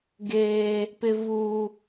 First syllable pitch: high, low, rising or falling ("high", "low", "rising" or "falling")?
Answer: high